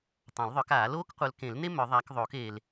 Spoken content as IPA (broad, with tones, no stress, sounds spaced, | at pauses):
tˤ ã˨˩˦ l ðˤ œ˨˦ k aː˨˩˦ l oː˦ k qʷ œ˨˦ l k ẽ˨˩˦ l n e˦ m œ˨˩˦ ðˤ aː˨˦ k ðˤ oː˨˩˦ k eː˨ l